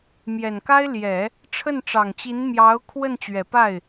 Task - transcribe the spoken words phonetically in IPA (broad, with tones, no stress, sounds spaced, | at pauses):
m j ɛ˨˩ n k a˥ ɪ̯ l j ɛ˨˩˦ | ʈ͡ʂʰ ə˥˩ n ʈ͡ʂ ɑ˨˩ ŋ t͡ɕ i˧˥ n m j ɑ˧˥ ʊ̯ kʰ w ə˥˩ n t͡ɕ ɥ ɛ˨˩ p a˥˩ ɪ̯